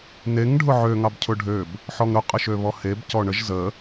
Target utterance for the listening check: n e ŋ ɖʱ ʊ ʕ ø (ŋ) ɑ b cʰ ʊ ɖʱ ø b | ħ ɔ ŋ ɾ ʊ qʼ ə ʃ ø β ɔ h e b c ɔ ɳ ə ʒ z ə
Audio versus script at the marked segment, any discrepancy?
no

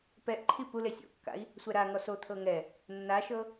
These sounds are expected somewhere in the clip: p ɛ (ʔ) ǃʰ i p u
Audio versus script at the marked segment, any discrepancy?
no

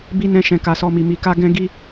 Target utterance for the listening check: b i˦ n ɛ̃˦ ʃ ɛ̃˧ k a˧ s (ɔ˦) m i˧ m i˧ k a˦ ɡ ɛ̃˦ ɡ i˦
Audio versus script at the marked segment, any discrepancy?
no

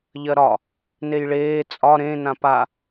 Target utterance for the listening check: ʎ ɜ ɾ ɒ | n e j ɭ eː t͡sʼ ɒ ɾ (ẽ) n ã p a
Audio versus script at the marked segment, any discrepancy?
no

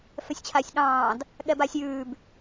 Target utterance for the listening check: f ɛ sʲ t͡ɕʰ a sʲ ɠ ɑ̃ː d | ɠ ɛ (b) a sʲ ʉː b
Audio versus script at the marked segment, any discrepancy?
no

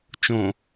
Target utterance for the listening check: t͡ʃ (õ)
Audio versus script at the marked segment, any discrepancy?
no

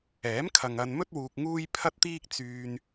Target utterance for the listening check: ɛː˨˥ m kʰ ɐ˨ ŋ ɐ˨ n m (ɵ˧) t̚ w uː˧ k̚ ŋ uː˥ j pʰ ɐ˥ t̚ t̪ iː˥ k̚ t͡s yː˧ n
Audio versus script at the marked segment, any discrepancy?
yes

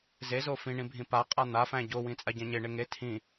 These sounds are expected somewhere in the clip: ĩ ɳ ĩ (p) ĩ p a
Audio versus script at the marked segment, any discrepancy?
yes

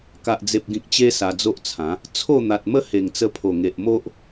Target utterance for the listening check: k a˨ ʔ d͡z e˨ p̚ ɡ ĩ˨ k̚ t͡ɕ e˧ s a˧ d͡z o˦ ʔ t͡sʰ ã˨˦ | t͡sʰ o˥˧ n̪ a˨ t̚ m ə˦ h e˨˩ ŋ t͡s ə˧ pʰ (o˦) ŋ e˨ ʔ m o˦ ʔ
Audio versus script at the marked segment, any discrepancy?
yes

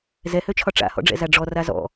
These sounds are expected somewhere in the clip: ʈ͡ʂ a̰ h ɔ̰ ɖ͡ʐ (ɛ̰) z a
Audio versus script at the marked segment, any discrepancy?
no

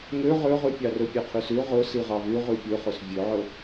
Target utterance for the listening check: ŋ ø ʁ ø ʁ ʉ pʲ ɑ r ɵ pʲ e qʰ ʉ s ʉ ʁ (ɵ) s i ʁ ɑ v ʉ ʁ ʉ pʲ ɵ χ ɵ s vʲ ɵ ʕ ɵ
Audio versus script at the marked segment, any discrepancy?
no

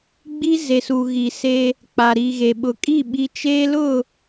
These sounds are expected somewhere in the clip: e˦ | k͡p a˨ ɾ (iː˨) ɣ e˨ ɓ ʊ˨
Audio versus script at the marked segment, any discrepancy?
no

